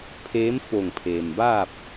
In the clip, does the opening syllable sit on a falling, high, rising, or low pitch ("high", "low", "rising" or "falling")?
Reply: rising